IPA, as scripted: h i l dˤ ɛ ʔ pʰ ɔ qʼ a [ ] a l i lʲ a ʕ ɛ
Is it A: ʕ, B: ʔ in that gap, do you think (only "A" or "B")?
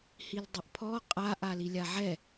B